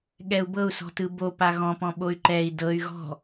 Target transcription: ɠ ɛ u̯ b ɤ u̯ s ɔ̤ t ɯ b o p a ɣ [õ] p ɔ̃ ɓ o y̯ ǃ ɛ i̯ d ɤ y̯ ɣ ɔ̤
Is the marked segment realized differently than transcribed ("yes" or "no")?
yes